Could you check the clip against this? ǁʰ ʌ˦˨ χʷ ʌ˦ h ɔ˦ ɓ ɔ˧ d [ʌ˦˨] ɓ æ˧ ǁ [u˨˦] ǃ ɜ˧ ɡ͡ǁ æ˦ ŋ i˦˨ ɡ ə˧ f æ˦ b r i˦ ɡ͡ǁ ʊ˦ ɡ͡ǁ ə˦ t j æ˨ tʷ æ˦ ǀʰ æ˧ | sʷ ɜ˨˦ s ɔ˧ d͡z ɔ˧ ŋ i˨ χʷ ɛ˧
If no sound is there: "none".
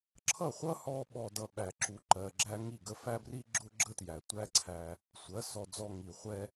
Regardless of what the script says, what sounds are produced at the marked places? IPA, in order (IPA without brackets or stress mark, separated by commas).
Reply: ʌ˧, u˧